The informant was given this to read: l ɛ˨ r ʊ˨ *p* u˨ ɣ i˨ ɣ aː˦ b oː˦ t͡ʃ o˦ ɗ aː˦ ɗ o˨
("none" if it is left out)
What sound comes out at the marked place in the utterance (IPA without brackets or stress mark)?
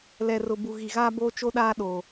b